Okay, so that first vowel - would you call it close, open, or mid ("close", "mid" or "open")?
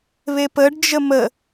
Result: mid